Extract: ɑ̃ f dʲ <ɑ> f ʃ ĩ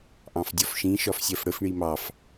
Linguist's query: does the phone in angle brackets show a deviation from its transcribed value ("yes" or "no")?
yes